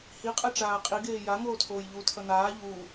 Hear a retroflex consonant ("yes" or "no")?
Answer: yes